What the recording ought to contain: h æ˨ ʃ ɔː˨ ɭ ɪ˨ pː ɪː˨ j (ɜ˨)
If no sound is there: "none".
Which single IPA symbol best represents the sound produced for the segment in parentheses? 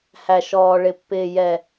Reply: ɛ˨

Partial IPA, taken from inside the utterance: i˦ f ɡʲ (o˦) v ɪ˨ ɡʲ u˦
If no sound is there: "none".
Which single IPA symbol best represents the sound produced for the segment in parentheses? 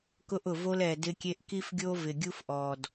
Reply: o˦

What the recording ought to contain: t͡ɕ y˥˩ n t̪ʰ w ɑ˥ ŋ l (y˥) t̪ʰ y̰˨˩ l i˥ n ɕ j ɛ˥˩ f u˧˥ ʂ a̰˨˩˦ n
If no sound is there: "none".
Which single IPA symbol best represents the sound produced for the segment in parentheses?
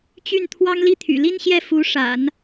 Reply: i˥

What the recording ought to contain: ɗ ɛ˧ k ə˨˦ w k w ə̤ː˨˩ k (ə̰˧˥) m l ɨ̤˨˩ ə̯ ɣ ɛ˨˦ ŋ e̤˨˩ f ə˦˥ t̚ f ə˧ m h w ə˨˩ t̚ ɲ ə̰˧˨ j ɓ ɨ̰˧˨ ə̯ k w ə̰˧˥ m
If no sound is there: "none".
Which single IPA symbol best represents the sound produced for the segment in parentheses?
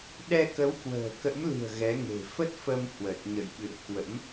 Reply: ə̰˧˥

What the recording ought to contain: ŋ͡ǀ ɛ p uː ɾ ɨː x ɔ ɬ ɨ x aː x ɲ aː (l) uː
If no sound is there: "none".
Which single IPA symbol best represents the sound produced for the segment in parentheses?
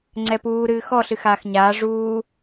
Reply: ʐ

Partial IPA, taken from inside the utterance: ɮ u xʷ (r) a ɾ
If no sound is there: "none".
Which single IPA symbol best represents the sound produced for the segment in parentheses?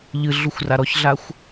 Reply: r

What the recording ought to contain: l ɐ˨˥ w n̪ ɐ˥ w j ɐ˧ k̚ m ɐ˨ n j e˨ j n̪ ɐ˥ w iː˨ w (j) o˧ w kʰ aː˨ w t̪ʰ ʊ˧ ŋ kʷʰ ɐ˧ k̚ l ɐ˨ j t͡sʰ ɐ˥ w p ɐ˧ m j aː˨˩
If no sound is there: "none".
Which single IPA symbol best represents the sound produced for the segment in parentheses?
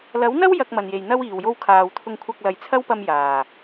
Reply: j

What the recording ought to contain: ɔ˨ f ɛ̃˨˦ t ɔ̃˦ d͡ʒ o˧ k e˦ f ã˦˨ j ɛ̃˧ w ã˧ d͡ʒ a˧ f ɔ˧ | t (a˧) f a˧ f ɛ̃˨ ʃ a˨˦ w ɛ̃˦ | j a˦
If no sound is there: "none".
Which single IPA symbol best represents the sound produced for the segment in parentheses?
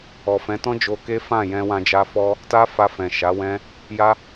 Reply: a˦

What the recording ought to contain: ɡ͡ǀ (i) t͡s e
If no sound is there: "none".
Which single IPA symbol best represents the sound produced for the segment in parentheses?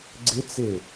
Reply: ɪ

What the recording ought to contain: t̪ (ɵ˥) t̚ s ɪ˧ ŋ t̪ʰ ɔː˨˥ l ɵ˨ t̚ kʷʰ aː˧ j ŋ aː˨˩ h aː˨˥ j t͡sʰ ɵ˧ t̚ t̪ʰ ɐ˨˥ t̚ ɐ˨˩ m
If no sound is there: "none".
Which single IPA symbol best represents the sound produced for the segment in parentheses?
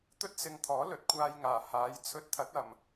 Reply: ɵ˥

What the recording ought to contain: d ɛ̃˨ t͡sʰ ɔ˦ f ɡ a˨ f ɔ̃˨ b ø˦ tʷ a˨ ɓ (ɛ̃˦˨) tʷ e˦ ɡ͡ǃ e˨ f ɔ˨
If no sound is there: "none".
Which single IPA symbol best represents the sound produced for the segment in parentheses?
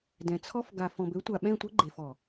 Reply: ɛ̃˦˨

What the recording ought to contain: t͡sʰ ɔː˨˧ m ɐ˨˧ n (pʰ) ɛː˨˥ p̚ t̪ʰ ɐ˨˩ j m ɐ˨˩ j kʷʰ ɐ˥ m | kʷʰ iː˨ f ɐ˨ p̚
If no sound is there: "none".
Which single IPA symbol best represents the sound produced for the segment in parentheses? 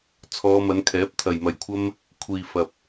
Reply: kʰ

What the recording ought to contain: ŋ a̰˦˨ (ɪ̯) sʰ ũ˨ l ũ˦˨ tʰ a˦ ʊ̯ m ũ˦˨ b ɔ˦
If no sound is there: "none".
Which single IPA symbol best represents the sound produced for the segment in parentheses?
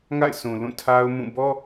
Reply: ɪ̯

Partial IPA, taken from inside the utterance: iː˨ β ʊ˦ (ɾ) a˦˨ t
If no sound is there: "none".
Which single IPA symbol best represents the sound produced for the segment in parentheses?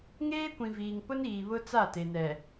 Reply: t͡s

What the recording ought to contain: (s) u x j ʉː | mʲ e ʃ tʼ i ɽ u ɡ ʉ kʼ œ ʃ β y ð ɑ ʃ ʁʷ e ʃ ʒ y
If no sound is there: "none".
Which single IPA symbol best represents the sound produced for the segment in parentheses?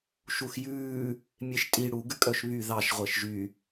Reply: ʃ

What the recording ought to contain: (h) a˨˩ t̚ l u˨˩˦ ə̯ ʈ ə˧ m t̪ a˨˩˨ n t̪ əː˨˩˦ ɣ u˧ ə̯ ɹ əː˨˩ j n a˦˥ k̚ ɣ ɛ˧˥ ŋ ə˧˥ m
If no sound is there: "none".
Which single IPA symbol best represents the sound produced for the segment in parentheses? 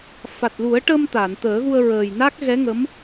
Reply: f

